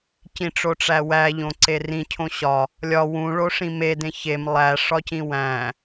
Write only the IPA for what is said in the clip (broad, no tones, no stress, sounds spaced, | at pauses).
c ĩ ʈ͡ʂ o ʈ͡ʂ æ w æ ʎ õ ǀ e r ĩ cʰ õ ɕ ɒ | lʲ ɒ w ũ ɭ o ʂ ĩ m e d ẽ ç e m lˠ æ ʂ ɒ c ĩ w æ̃